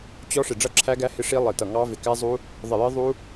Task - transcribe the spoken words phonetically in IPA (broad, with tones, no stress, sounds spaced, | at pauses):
t͡ɕ ɔ˦˥ ʂ ɪ˧˩ ɖ͡ʐ ʌ˦˥ ǁʰ æ˦˥ ɡ æ˦˥ h ɪ˦˥ ʂ i˦˥ lˠ ɪ˧˩ t ʌ˧˩ ŋ ɑ˦˥ v ɪ˧˩ k æ˦˥ zˤ u˦˥ | ðˤ ɪ˧˩ j ɪ˦˥ ðˤ u˦˥